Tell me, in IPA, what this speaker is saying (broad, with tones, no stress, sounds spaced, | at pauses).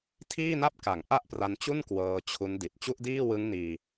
tʰ iː˥˩ n a˥˩ p̚ k a˩˦ ŋ ʔ a˥˩ ʔ p r a˧ n t͡ɕ u˥˩ n k w ɤː˧ t͡ɕʰ u˦˥ n d i˨˩ t̚ t͡ɕ u˥˩ ʔ d iː˥˩ w ɯ˦˥ ŋ n iː˧